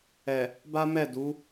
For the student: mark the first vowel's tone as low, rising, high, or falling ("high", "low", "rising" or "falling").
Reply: low